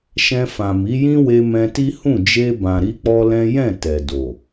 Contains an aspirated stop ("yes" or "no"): no